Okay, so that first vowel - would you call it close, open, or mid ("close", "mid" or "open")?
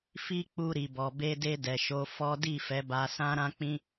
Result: close